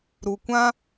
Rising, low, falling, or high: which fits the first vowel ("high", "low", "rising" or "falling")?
low